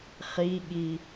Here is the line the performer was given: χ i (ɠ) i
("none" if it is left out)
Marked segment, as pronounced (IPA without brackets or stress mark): ɠ